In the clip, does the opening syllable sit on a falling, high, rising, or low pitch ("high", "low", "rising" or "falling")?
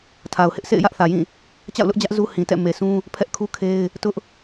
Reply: low